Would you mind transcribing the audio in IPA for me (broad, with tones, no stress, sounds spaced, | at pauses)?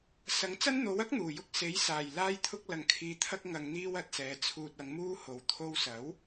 s ɐ˨˥ ŋ t͡s ɐ˥ n n̪ o˨˥ w ɐ˥ k̚ n̪ uː˨˩ j ʊ˧ k̚ s e˨˥ j s aː˨˩ j l aː˧ j t̪ʰ ʊ˧ k̚ l ɐ˨˩ ŋ kʰ iː˨˧ t̪ʰ ɐ˧ k̚ ŋ ɐ˨ ŋ n̪ iː˧ w ɐ˨ t̚ s ɛː˨˧ t͡sʰ uː˨ t̚ ɐ˨˧ ŋ m uː˧ h o˨˩ w t̪ʰ o˧ w s ɐ˨˥ w